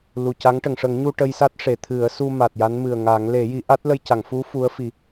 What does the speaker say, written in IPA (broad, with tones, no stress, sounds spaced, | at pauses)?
l u˨˩ c a˧˥ ŋ ʈ ə˨˩˨ ŋ ʂ ə˨˩˦ ŋ ɲ u˧ ʈ ə˧ j s a˦˥ t̚ ʂ e˨˩˨ t̪ʰ ɨ˨˩˦ ə̯ s u˧ m a˨˩ t̚ j a˧˥ n m ɨ˨˩ ə̯ ŋ a˨˩˦ ŋ l e˨˩˦ j i˨˩˦ ʔ a˦˥ t̚ l ə˧ j c a˨˩˨ ŋ f u˧˥ f u˧˥ ə̯ f i˨˩˦